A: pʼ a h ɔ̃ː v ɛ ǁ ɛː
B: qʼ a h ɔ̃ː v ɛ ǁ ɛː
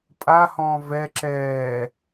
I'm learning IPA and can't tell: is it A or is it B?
A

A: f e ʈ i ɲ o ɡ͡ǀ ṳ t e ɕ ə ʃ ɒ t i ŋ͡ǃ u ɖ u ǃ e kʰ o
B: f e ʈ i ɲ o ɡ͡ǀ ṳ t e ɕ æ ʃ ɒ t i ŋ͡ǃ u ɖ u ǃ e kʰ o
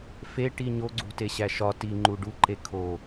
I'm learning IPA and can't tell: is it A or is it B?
B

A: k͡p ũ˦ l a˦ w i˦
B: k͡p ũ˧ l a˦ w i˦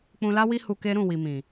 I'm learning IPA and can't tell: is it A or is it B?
B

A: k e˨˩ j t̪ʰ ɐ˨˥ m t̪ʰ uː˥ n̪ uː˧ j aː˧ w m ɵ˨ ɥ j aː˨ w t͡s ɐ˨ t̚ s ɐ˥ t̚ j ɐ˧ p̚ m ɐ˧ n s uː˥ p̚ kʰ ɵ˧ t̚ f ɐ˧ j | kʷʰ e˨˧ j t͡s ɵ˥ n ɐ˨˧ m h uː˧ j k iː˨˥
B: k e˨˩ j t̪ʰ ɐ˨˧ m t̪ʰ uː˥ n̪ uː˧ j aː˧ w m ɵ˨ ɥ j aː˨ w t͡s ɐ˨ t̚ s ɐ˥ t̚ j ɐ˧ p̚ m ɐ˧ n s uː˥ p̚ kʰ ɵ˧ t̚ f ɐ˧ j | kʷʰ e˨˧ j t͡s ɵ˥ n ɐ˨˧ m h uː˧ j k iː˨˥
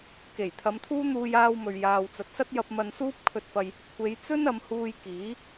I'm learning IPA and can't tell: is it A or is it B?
B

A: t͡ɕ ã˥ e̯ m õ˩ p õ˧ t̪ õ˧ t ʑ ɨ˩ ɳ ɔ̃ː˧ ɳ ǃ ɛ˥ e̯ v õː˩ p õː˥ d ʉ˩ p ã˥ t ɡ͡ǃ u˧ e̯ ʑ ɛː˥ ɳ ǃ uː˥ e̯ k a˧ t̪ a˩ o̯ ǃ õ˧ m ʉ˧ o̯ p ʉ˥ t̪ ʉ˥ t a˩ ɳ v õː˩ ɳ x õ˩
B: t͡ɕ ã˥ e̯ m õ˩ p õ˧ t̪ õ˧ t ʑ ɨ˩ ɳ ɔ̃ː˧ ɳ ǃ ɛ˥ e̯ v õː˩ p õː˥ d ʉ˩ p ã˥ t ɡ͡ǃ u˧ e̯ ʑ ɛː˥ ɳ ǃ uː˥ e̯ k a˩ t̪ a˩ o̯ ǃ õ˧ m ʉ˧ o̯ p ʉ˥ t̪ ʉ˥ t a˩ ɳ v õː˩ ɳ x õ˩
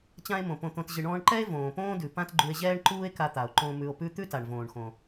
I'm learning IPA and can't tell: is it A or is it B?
A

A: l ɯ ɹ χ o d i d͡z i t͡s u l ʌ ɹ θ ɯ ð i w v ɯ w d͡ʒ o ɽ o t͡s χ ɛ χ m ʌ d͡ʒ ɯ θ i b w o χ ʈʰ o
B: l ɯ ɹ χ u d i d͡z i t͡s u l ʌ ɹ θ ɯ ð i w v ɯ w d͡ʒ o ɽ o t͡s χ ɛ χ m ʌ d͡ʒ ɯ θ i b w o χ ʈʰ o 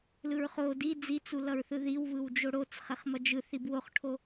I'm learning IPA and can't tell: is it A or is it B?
A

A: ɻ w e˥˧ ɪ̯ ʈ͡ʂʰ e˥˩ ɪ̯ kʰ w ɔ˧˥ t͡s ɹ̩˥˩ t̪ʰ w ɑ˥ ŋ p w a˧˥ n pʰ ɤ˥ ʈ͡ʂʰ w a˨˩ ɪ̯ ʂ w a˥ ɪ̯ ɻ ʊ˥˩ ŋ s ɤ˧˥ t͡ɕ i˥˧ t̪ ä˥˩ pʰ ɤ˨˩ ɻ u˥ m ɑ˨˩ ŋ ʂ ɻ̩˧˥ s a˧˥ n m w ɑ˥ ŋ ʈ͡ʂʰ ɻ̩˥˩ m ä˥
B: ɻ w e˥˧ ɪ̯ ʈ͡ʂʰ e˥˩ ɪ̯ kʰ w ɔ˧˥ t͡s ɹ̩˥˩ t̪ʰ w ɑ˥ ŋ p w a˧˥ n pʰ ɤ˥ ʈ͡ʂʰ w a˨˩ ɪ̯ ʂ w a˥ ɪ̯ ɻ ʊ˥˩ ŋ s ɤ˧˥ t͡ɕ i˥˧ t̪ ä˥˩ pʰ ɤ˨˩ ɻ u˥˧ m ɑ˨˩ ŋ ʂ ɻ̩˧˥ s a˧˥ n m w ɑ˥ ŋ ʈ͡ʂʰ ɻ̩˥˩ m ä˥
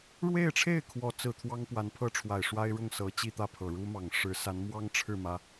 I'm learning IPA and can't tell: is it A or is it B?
A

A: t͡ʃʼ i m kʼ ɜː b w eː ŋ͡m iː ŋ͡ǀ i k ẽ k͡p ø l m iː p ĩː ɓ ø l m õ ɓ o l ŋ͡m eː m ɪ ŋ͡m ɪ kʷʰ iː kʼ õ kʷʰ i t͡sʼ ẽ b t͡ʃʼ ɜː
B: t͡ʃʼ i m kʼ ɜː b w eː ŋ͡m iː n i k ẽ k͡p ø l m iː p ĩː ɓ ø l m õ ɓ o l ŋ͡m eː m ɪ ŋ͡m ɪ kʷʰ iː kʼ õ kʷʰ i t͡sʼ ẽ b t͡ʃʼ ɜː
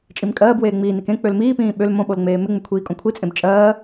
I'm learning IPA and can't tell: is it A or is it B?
B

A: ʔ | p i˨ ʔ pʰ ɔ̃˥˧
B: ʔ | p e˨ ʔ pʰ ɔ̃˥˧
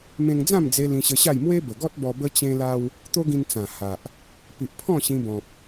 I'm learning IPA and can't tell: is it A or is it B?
A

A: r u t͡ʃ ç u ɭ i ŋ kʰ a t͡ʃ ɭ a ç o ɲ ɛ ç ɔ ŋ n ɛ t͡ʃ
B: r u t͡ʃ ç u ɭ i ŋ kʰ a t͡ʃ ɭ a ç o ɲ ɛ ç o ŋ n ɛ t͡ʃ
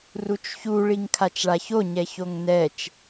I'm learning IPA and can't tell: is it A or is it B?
B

